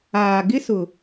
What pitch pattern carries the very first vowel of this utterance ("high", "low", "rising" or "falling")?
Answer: low